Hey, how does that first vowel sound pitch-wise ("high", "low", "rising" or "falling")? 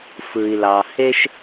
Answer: low